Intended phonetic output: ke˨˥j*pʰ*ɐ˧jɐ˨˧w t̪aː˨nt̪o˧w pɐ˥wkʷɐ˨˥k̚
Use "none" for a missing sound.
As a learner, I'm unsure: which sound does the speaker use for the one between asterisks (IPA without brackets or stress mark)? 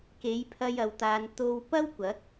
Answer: pʰ